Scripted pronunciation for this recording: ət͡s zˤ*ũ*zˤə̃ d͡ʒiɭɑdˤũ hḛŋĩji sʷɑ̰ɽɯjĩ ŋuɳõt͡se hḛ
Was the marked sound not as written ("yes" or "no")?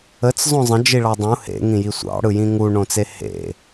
yes